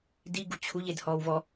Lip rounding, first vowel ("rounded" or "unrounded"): unrounded